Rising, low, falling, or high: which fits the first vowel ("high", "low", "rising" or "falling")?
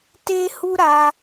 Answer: high